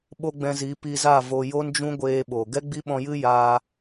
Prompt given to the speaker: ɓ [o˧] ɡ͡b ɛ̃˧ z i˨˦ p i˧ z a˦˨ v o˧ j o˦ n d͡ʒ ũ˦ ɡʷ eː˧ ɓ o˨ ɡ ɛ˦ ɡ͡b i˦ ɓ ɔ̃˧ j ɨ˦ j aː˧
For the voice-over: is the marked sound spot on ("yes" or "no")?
yes